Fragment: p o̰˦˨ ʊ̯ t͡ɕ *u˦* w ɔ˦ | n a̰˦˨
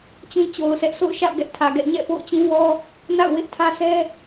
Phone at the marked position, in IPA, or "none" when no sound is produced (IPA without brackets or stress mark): ũ˦